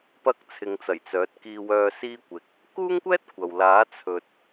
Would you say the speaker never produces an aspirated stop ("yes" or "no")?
no